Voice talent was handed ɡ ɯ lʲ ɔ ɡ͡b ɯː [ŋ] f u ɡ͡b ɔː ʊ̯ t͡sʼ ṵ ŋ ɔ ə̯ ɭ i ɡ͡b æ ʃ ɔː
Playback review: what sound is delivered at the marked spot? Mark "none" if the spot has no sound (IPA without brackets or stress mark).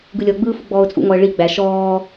none